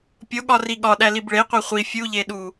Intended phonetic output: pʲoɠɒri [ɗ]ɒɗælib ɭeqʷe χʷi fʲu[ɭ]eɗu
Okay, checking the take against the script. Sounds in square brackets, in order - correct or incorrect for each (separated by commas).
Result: incorrect, incorrect